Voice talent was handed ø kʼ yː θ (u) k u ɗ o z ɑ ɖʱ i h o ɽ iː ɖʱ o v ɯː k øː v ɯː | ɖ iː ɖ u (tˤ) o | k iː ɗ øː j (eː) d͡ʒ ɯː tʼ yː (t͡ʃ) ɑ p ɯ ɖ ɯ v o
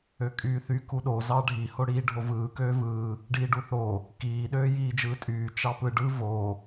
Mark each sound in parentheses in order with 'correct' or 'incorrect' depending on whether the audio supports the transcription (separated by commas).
incorrect, incorrect, incorrect, correct